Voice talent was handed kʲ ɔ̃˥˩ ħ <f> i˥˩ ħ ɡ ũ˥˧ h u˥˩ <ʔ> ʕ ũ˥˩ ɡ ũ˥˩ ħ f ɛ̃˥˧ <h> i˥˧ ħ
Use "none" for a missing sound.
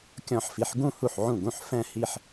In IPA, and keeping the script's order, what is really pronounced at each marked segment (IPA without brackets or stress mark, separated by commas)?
f, ħ, h